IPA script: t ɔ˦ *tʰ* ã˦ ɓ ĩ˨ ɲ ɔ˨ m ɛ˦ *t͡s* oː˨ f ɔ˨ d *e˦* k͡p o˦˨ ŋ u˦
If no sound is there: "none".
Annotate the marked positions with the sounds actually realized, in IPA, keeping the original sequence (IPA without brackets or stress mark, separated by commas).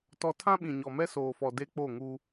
tʰ, s, e˦